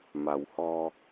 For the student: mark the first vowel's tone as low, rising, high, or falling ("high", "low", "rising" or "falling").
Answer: low